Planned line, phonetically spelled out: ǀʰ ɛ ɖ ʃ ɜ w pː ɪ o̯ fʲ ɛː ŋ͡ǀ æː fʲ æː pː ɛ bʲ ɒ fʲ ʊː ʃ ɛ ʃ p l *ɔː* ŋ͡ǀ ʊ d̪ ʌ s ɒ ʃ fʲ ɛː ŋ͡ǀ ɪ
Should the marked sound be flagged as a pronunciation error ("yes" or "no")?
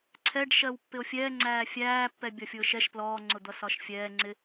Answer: no